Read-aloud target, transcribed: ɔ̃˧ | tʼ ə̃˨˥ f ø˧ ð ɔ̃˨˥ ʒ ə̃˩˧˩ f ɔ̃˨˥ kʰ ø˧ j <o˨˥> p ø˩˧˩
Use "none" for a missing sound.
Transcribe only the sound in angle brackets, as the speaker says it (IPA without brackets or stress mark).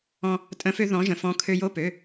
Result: o˧˥˧